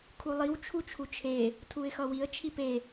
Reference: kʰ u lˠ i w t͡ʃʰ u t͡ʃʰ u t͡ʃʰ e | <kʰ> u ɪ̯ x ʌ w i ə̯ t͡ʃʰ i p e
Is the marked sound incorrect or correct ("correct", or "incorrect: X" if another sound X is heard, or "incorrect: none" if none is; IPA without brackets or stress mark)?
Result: incorrect: tʰ